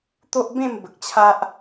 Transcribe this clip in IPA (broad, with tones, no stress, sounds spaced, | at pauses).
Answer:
t̪ o˦ ʔ b ẽ˥˧ m b ə˨ k̚ t͡ɕʰ a˦ ʔ